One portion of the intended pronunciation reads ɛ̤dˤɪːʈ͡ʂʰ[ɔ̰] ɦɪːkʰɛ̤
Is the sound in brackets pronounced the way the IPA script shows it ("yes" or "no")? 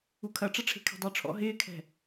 yes